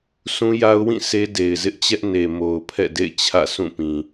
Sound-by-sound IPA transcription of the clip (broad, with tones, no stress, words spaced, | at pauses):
sʰũ˦ja˦ʊ̯wĩ˦˨ sʰe˦de˨ɪ̯zɪ˦ʔt͡ɕɛ˦ʔ ne˨mo˨ʊ̯ pʰɛ̰˦˨dḛ˦˨ɪ̯ t͡ɕʰä̰˦˨sʰũ˦˨pĩ˨